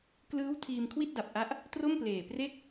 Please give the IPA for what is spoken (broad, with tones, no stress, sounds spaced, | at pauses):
k l ɯː˦˥ w tʰ iː˧ m kʰ w i˥˩ t̚ d a˨˩ p̚ ʔ a˦˥ ʔ | t r o˥˩ m p l eː˨˩ p r e˥˩ k̚